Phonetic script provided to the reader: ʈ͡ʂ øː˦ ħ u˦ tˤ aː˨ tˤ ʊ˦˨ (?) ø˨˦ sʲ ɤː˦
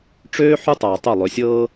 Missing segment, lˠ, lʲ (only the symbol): lˠ